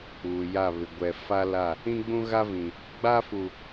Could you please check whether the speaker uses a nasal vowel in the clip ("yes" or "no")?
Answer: yes